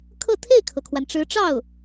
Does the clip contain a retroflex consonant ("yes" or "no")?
yes